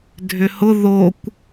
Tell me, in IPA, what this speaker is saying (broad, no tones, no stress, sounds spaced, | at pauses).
dʱ ʏ h ʊ ð o kʷ